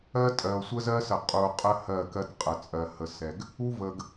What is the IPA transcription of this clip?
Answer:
ɜ˦ tʼ ɜ˨ o̯ sʷ ə˦ z ɜ˦ s ə˨ qʼ u˨ o̯ qʼ ə˦ h ɜ˦˨ k ɜ˦ t qʼ ə˨ t͡sʼ ɜ˨ h ə˨ s ɛ˨ ɡ | u˦ v ə˨ ɡ

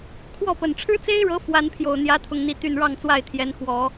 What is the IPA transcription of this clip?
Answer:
kʰ w ɔ˥˩ p ə˨˩ n ʈ͡ʂʰ ɻ̩˥ t͡s e˥ ɪ̯ ɻ ɤ˧˥ f w a˧˥ n pʰ j o˨˩ ʊ̯ n̪ j ä˧˥ t̪ʰ ʊ˨˩ ŋ n̪ i˧˥ t̪ y˥˧ n ɻ ɑ˥˧ ŋ t͡s w a˥˩ ɪ̯ t̪ʰ j ɛ˧˥ n x w ɔ˨˩˦

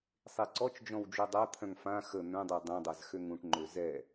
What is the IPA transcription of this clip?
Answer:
sˤ e ǀ ɔ t͡ʃ d͡ʒ ɔ̃ w d͡ʒ o dˤ a t̪ʰ œ̃ ŋ f ã x ə n̪ œ̃ dˤ ə i̯ dˤ œ̃ dˤ a z x ø ŋ ũ ʈ ŋ͡ǃ ø z ɛ

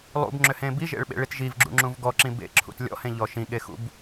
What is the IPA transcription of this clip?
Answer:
lˠ ṵ b ŋ͡ǁ ʏ h ẽ b i ʒ ḛ ɭ ɓ ḛ ɭ i t ʒ i v ɡ͡ǁ ṵ ŋ͡ǁ ũ v ɡ ɔ ǁ ĩ b ḛ ǁʰ ṵ t lʲ ɔ̰ h ẽ ʎ ɔ ʃ ĩ ɠ e x ṵ b

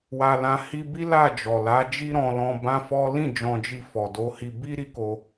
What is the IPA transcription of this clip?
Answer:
w a˧ l ã˧ h i˦ b i˦ l a˦˨ d͡ʒ ɔ˨ l a˨˦ d͡ʒ i˦ ɾ ɔ̃˧ l ɔ̃˧ b ã˦ f ɔ˦ l ĩ˦˨ d͡ʒ ɔ̃˧ d͡ʒ i˧ f ɔ˨ d o˨˦ h i˧ b i˦ ɾ i˦ k o˧

